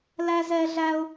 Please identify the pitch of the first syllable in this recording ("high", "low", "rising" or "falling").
high